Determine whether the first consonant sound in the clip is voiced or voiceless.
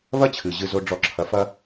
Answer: voiced